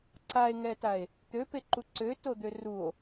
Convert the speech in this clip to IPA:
ǀ a e̯ ŋ ɛ t a e̯ | t̪ ø p e ǃ u ǀ ø t o d̪ ø r u o̯

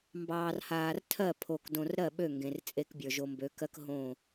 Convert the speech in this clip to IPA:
m b ɑː˨ r h aː˨ r tʰ ɜ˦˨ pʰ o˨ k d õ˨ r ɾ ɜ˦˨ ɓ ø˦˨ ŋ ɡ ẽ˨ r t͡sʼ e˦ k bʲ ə˞˨ ʒ o˨ m b ø˨˦ k ɜ˦ k ɦ õ˦˨

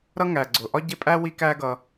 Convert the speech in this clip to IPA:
ɾ ʌ˥ ŋ æ˩ ɡ͡ǀ ʊ˩ ʔ ɒ˥ ɟ ɪ˦ pʼ æ˥ w i˦ k æ˦ ɡ ʌ˨

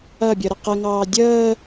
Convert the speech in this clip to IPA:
ɐ bʲ ə ɾ ə q ə ŋ ɑː dʲ əː

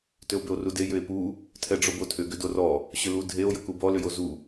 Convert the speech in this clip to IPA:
t ʏ o̯ b ʏ o̯ r u d e j ʏ e̯ p u | tʰ ɛ ɖ͡ʐ o b o tʰ ʏ ɡ ʏ d o r ɔ | ɕ ʏ l u dʱ e o̯ j ə k u b ɔ l ʏ j o z u

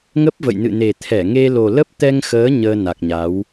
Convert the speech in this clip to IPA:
ŋ ə˦˥ p̚ v ə̰˧˨ j n ɨ̰˧˨ n e˨˩ t̪ʰ ɛ˧˩ ŋ e˧ l o˨˩ l ə˦˥ p̚ t̪ ɛ˧ ŋ x əː˨˦ ɲ əː˧ n a˨˩ k̚ ɲ a˨˦ w

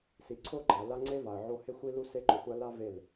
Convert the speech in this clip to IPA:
s i˧ ǀʰ o˦ ɡ͡ǃ a˨ l a˦ ŋ͡ǀ e˦ v a˨ ə̯ ʕ o˧ h e˦ xʷ i˧ l u˧ s e˧ ǃ ʊ˨ xʷ a˧ l a˦ v e˦˨ l

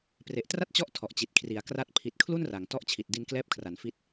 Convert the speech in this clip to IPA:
p r e˨˩ ʔ t r a˥˩ t̚ t͡ɕ ɔ˦˥ ʔ tʰ ɔ˨˩ ʔ t͡ɕ i˨˩ t̚ kʰ r i˩˦ a̯ k r a˦˥ t̚ pʰ i˨˩ t̚ kʰ l u˥˩ n r a˩˦ ŋ t ɔ˦˥ ʔ t͡ɕʰ i˨˩ t̚ d i˧ n k l ɛː˦˥ p̚ kʰ r a˩˦ n f i˦˥ t̚

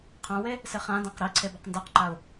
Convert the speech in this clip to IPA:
qʰ ã w e | s ɪ χ ã d ã q ɾ i ǀʰ e b a q n d a q ǃ a ʊ̯

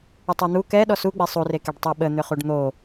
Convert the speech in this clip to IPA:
ə tˤ ɑ n̪ u k ɛ ɗ ɔ s u ɡ͡b e sˤ u r e k e ɖ tˤ e ɓ ə n̪ ʏ χ u ɖ n̪ o

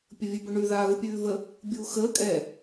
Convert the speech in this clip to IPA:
pʲ ə vʲ ʉ b ə ɳ ʉ ð aː ɣ u pʲ ʉː v ə | bʲ uː x əː kʼ ɛ

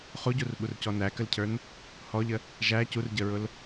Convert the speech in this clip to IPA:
χ u ɟ u r ɓ u r c ɔ n æ k ə l cʰ ə˞ n | h ɔ ʎ ə | ʒ æ c u r ɟ ə ɹ ʊ l

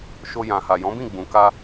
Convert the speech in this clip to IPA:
ʃ o˧ j ã˨ h a˨ j ɔ̃˨˦ b ĩ˦˨ ɡ͡b ũ˨ k a˧

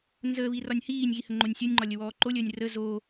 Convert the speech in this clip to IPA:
n z əː β i r ɒ nʲ h iː nʲ ɣ i h ə ŋ͡ǃ o nʲ sʲ o nʲ ŋ͡ǃ ɒ lʲ ə w ɔː ǃ o lʲ əː nʲ r ə z o

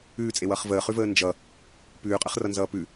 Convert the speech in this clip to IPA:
ʉː t͡sʼ e w ʌː χ v əː χ ʉ v əː n d͡ʒ ʌ | p ʉː qʼ ə χ r ʌ n z ʌː p ʉ

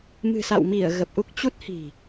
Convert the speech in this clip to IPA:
m ɨ̤˨˩ s a̰˧˨ w m i˧˩ ə̯ ɣ ə˨˩ p̚ ʔ u˦˥ k̚ t͡ɕ u˦˥ t̚ h i̤˨˩

